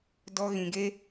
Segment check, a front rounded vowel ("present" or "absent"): absent